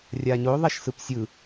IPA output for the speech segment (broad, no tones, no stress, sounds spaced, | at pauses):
rʲ a ɲ o ðˤ ɛ ʃ s ɯ p sʲ ɯ